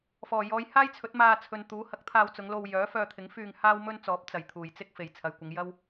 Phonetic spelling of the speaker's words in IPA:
f ɔː˨˩ j ɔː˨˧ j h aː˥ j t͡sʰ ɵ˨˥ t̚ m aː˧ t͡sʰ ɵ˨ n t̪ uː˨˥ h ɐ˨˥ k̚ t̪ʰ aː˧ w t͡s ʊ˨˧ ŋ l o˧ w j œː˨˥ f œː˧ t̪ʰ ɪ˨˥ ŋ f yː˧ ŋ h aː˥ w m ɵ˥ n t͡s ɔː˨˥ p̚ t͡s ɐ˨˩ j t̪ʰ uː˨˩ j t͡s ɪ˥ k̚ f e˨˩ j t͡sʰ ɐ˨ j kʷ ɪ˨˧ ŋ j ɐ˥ w

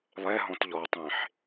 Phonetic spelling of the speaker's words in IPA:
lˠ ɛ ɦ ɔ̃ t ʎ ɔ tˤ ẽ ħ

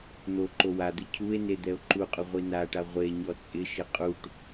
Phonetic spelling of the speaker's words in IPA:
n̪ o ǃ o w a d̪ ɪ cʰ u e̯ n e d̪ ɛ o̯ ǃ u qʼ ʊ ʁʷ i n a ʈ a ʁʷ e ɲ ɔ t͡sʼ ɪ ʃ ɪ qʼ u ʈ

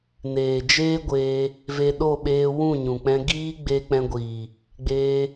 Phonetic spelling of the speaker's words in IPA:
n eː˨ d͡ʒ eː˦ ɡʷ eː˧ | v e˧ ɗ o˦˨ ɓ eː˧ w ũ˦˨ ɲ ũ˨ k͡p ɛ̃˧ ɡ iː˦ ɡ͡b e˧ k͡p ɛ̃˧ ɡʷ iː˨ | ɡ͡b eː˧

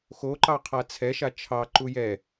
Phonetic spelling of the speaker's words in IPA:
x o ǃ ɑ qʰ a t͡sʰ ɛ ʃ a t͡ʃʰ ɑ ǃ u j ɛ

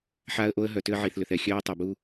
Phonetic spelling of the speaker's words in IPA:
ħ a˦ ə̯ ʔ o˦ ə̯ ɦ œ˨ t ʏ˦ ə̯ ʕ iː˨ θ l ʏ˨ θ ɛ˨ xʲ œː˦ ə̯ tˤ o˨ b u˦

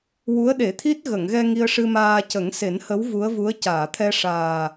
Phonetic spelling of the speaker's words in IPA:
w u˧˥ ə̯ ɗ e˨˩˦ t̪ʰ i˦˥ t̚ ɣ ə˨˩˨ ŋ ɣ ɛ˧ ŋ i˧ ə̯ ʂ ɨ˧ m aː˧ c ə˨˩˦ ŋ s e˨˩˦ n h ə˧˥ w v u˧˥ ə̯ v u˧˥ ə̯ c aː˨˩˨ t̪ʰ ɛ˧ ʂ aː˨˩

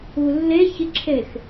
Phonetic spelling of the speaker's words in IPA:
u lː e ç ɪ ǁʰ e x

